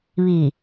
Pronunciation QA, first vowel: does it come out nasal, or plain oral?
oral